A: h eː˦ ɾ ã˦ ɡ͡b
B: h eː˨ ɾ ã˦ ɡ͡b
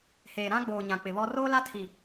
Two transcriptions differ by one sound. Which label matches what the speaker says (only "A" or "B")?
B